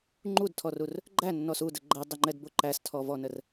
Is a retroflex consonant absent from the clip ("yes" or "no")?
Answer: yes